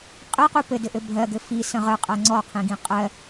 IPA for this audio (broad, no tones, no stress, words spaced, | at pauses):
qʼɘqu pɘdɘʔɘ bʱɜɡɘ fisə̃ ʁəqʼɜ ŋ͡ǀɔqʰĩɡĩ qʼɜ